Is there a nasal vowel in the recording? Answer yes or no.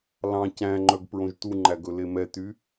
yes